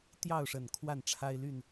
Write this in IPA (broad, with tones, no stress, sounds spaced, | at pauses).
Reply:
t̪ j ɑ˥˨ ʊ̯ ʂ ə˨˩ n kʰ w a˥˨ n ʈ͡ʂʰ a˦ ɪ̯ l y˥˨ n